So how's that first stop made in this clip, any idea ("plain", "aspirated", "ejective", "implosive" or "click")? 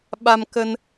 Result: implosive